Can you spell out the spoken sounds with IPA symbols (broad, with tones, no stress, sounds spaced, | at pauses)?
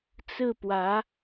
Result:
t͡s ɹ̩˥˩ p w ä˧˥